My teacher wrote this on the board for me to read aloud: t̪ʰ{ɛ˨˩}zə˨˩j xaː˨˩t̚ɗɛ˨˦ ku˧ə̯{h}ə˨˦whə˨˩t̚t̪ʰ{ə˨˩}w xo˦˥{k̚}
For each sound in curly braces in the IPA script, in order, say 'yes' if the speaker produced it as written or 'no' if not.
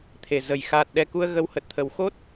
no, no, yes, no

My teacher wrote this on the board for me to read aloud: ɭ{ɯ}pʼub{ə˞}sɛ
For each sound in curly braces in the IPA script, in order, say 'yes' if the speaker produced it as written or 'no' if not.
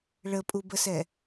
no, no

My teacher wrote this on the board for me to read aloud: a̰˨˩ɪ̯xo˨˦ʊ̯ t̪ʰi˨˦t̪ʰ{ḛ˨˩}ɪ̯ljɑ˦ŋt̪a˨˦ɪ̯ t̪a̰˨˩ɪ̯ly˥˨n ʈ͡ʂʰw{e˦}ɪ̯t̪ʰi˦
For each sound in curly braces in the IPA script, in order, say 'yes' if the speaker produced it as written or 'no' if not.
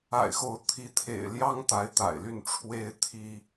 yes, yes

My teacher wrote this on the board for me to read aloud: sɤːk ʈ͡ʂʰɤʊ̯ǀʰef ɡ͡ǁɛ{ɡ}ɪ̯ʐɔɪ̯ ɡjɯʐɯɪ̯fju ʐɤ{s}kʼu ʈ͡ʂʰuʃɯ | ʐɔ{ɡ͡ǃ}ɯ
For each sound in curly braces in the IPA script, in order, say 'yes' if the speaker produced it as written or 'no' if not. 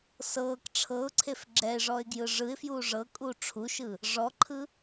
no, no, no

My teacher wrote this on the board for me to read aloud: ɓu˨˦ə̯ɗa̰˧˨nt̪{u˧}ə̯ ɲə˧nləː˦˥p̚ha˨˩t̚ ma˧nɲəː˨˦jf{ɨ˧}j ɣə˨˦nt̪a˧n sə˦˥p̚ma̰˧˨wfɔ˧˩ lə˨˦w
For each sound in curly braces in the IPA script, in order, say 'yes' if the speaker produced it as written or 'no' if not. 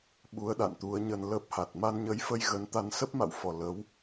no, no

